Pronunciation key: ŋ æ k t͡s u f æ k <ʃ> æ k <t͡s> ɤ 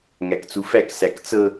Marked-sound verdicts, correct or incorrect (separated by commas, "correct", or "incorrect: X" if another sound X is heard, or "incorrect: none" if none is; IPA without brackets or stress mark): incorrect: s, correct